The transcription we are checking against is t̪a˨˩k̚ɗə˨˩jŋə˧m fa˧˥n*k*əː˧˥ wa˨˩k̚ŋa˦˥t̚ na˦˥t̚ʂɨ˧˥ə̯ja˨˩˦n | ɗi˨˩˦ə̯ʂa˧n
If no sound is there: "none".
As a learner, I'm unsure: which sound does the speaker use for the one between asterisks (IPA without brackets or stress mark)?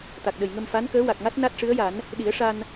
k